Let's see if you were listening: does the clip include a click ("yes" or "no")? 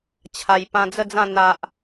no